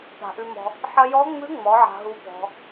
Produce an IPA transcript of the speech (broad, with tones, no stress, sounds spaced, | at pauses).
p a̤˨˩ ʔ ʉ˧ m ɔ̤˧ | ħ ɐ˧ j ɔ˧˥ ŋ͡m ʉ˧˥ ŋ͡m ɔ˩˧ ʕ a̤˧ ɦ u˧˥ p ɔ̤˧˥